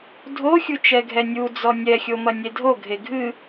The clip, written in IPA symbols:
dʱ o xʲ u t͡ʃ ɛ ɡʱ ɛ nʲ u d͡z ɔ nʲ ɛ xʲ o m ɐ nʲ e dʱ o ɡʱ e ɡʱ ɨ

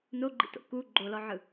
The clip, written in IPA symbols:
n o ɡ͡ǃ ḭ t o̰ k u ɡ͡ǃ o l ɔ ʕ ɯ

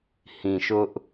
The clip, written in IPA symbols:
h ĩ˨ ʃ ʊ˦ ʔ

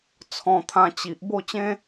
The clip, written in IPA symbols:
t͡sʰ ɔ̃˧ t̪ʰ ã˧ t͡ɕ i˨ ʔ b o˥˧ t͡ɕ ẽ˦

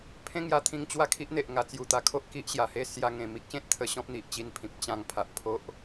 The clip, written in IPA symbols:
pʰ ẽ˦ ŋ j a˧ t̪ʰ ĩ˧ ŋ t͡ɕ w a˥˧ kʰ i˦ ʔ n̪ e˨ ʔ ŋ a˨˩ t͡s j u˨˩ t̪ a˨˩ kʰ o˦ ʔ k i˦ ʔ ɕ j a˨˩ h e˥˧ s j a˧ ŋ ẽ˨˩ m i˦ k̚ ɕ ẽ˦ t̚ t̪ʰ ə˧ ɕ ɔ̃˦ p̚ n̪ i˨ ʔ t͡ɕ i˧ n pʰ ĩ˨ p̚ t͡ɕ ã˧ ŋ pʰ a˨ ʔ pʰ o˦ ʔ

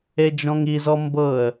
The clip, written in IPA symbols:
e d͡ʒ ɔ̃ ŋ i z ɔ m b ɤ ə̯

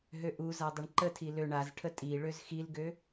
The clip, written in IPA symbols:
ɦ ø ʔ u z a dˤ ʊ ɳ ǃ ə tʰ i l ø ɳ a z ʈʰ ə tʼ i ɭ ø z x i l ɡ ø

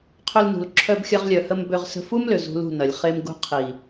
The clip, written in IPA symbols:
qʰ ʏ˧ l n ṳ˨ l ǁʰ œ˧ b xʲ ɐ˧ ʁ lʲ œ˨ h ə˧ m b ʏ˧ ʁ s ə̤˧ f u˦ m l ʏ˨ z ṳ˧ l ṳ˦˨ n ɐ˨ lʲ χ e˧ m ɡ ṳ˧ qʰ i˨

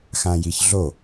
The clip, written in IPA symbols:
x ã j i ç ɮ o

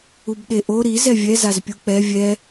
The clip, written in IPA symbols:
u b ɗ e ʔ o ɾ i z ɛ vʲ ɛ z a z pʲ u k͡p ɛ vʲ ɛ

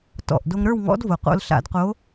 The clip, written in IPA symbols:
t ɔ̰˨˩ ʔ d o˧ ŋ ɾ ə˞˥˧ w ŋ ɔ̰˧˥ d v o˨˩ q o̰˧ l ɬ a̰˧˩˧ d q o˧˥

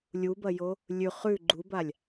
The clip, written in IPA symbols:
lʲ u b ɐ j o | lʲ ʉ χ ʉ ɡ͡ǃ u b a lʲ

